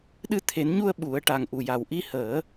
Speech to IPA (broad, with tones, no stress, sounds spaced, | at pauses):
ɗ ɨ˧ t̪ʰ e˨˩˦ n ɲ u˧ ə̯ ɓ u˨˩˦ ə̯ ʈ a˨˩ ŋ ʔ u˨˩ j a˨˩ w ʔ i˧ h əː˨˩˦